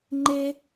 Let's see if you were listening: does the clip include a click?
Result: yes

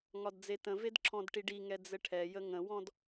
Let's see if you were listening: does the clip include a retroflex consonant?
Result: yes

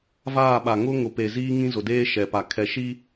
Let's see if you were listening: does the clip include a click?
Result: no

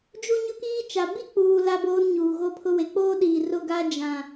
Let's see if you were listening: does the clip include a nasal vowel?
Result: yes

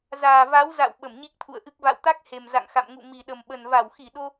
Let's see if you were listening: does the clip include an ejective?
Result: no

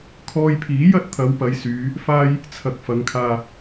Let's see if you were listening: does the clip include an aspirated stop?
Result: yes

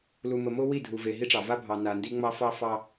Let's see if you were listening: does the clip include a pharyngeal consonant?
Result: no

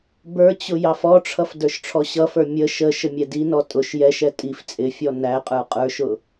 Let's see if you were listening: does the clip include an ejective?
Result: yes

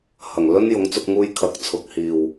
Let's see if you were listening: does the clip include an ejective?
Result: no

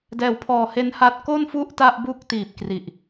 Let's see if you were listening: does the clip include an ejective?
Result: no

